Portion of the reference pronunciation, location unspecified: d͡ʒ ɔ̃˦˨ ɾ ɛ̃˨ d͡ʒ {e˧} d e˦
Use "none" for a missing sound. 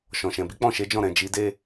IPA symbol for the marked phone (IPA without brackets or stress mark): i˧